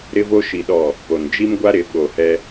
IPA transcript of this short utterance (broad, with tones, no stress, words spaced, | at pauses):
ɾɪ˦vo˦ʃi˨ ɗɔ˨ | po˨n d͡ʒi˦mɡʷa˦ ɾɪ˨˦ ɓo˨hɛ˦